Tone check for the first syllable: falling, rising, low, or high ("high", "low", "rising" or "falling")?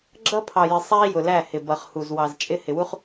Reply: high